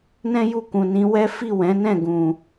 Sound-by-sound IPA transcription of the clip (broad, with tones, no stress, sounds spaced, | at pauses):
n ɛ̃˦ j u˦˨ k ũ˨ n ĩ˨˦ w ɛ˦ f i˦˨ w ɛ̃˨˦ n ɛ̃˦˨ ɡ ũ˨